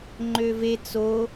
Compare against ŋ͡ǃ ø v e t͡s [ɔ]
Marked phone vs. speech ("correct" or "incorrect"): incorrect